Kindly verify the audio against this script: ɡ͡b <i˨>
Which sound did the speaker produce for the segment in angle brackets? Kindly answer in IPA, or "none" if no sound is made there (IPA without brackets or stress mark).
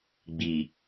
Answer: i˨